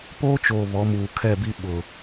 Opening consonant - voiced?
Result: no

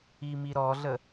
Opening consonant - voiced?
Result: yes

